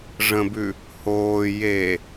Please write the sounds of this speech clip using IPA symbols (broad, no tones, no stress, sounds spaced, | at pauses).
ʐ ə̃ b ʉ | h oː j e